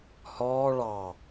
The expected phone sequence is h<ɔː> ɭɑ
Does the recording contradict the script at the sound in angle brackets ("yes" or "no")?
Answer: no